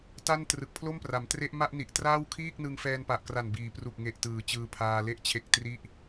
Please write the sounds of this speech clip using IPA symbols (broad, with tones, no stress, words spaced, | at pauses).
ta˥˩n trɯ˨˩k̚pʰlo˥˩mpra˩˦mtre˦˥ʔ ma˥˩ʔ ni˨˩ʔtraː˥˩w kʰiː˥˩k̚nɯ˧ŋ fɛː˧npa˨˩ʔkra˨˩nbiː˩˦ pru˨˩k̚ŋe˨˩ʔtɯː˩˦ t͡ɕɯː˧pʰaː˧le˥˩ʔt͡ɕʰe˦˥k̚ tri˥˩ʔ